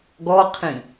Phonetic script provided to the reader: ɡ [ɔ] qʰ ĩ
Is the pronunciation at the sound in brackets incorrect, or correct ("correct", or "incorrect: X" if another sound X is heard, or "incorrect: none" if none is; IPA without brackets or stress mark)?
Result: correct